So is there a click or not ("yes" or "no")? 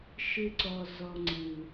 yes